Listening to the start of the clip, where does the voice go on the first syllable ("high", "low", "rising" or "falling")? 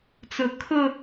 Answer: high